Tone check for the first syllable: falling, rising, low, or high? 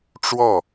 falling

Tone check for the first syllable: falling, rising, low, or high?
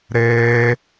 high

